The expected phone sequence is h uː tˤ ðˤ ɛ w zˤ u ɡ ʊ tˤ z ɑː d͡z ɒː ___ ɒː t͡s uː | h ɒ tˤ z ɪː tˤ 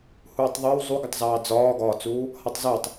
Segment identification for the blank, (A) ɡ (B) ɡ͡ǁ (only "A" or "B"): A